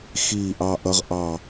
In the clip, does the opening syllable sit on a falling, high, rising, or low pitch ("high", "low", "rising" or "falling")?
falling